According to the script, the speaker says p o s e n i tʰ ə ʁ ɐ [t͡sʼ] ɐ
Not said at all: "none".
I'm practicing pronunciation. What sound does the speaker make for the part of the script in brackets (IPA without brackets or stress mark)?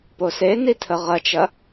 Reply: t͡ʃ